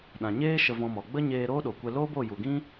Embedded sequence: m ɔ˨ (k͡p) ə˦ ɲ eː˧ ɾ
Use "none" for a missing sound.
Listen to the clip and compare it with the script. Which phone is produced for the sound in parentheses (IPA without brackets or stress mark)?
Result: ɡ͡b